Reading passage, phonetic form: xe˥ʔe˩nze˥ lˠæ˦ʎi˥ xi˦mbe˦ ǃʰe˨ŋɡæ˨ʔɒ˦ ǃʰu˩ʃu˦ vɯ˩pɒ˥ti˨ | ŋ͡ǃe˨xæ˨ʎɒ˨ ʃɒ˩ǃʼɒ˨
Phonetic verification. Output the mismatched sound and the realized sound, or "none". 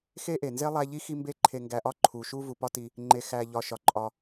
ɯ˩ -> u˩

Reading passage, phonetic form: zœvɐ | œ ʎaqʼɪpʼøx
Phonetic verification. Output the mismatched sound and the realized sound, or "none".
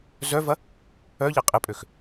none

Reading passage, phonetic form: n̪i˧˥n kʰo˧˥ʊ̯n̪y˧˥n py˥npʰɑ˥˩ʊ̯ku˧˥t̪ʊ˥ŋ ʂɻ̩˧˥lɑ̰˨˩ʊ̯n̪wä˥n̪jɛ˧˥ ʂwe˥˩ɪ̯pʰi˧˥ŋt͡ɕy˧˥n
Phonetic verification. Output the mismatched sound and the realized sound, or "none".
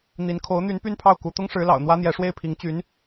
none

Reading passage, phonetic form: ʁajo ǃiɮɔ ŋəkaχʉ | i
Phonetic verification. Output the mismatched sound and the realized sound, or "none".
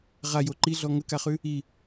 none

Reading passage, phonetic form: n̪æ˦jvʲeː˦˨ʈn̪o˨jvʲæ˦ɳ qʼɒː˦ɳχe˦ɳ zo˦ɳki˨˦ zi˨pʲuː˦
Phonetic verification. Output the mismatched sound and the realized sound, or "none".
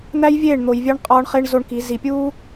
ʈ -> ɳ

